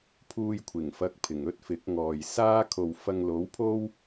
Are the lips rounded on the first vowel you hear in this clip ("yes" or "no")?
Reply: yes